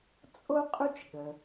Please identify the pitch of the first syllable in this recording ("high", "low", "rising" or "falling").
high